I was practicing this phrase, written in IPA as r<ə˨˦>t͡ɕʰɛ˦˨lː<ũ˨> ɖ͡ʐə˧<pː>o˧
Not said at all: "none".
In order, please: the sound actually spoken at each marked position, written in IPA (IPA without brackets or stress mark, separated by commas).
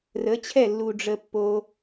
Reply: ə˨˦, u˨, pː